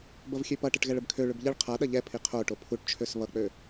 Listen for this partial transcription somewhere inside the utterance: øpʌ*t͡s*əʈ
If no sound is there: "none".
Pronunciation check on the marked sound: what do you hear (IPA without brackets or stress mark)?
ʈ